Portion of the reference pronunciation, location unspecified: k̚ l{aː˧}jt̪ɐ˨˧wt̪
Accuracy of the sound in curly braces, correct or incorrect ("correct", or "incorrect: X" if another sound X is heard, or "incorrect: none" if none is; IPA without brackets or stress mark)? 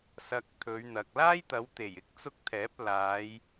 incorrect: aː˥